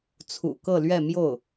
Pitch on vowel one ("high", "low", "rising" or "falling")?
low